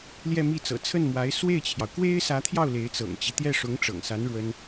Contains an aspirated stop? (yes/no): yes